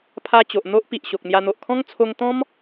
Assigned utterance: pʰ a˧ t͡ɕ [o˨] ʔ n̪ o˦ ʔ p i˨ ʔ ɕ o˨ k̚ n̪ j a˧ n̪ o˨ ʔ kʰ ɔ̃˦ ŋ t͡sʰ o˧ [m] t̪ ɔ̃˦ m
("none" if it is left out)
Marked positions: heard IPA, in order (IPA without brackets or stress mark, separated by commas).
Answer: o˨, ŋ